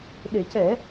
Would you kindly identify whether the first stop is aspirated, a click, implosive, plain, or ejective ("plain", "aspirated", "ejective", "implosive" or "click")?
implosive